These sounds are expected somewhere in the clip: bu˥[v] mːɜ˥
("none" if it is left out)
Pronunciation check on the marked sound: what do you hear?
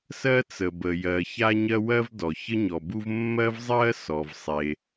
v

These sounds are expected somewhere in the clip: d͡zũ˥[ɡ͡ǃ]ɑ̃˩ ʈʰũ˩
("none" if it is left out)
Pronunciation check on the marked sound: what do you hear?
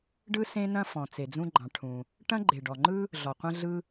ɡ͡ǃ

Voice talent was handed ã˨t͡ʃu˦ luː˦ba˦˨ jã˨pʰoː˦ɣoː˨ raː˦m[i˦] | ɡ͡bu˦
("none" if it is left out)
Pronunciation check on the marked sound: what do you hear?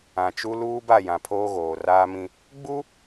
ĩ˦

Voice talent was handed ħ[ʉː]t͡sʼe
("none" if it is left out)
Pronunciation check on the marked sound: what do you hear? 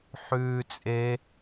ʉː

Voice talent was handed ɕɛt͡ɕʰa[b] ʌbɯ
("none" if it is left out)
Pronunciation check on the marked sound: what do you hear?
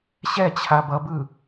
b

